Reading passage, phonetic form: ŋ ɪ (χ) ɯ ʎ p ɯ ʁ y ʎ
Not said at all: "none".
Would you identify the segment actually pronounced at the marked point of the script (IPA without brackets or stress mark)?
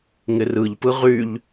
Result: r